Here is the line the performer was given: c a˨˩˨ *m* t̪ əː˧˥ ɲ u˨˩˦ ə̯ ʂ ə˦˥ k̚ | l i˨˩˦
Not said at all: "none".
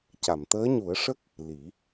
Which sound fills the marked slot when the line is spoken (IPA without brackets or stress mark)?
m